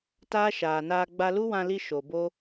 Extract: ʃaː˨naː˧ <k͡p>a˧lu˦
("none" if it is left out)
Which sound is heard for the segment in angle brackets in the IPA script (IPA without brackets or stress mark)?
ɡ͡b